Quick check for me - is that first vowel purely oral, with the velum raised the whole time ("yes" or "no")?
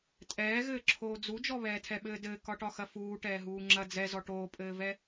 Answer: yes